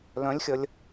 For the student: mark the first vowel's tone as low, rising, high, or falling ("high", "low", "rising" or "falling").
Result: rising